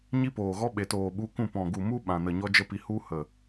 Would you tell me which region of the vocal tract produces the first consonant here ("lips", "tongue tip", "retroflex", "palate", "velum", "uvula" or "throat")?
palate